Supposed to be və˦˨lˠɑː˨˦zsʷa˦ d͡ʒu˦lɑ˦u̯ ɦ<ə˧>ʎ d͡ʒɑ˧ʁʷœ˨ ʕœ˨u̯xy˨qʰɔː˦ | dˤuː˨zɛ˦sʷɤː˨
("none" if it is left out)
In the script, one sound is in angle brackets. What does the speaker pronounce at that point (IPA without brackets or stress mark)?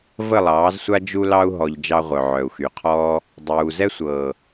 ɔ˧